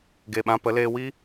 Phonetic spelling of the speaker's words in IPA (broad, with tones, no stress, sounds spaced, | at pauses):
ɡ e˨ ɓ ã˧ p ə˨˦ l eː˧ w iː˦